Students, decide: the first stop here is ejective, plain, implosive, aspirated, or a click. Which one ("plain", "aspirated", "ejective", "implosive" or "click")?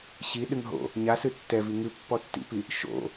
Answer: implosive